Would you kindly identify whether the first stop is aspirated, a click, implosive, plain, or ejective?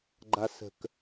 click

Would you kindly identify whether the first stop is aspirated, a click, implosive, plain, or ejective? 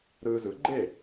click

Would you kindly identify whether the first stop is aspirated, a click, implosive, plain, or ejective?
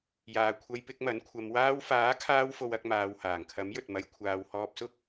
aspirated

